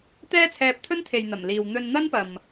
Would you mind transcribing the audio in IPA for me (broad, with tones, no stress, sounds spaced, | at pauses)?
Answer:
t̪ ɛː˥ t͡sʰ ɛː˧ p̚ t̪ʰ ɵ˥ n t̪ʰ e˨ j n̪ ɐ˨˩ m l iː˨ w n̪ ɵ˧ n n̪ ɐ˥ n p ɐ˨ m